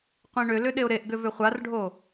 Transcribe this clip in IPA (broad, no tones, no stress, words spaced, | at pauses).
qʷĩɳʏlʏ ɗeʊ̯ɾeʔɡʏ vʏχʷarɖʱo